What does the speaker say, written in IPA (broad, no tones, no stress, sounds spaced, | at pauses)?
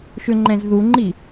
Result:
ʃ ʏ ŋ͡ǃ ɛ̃ z ð u ŋ͡ǃ i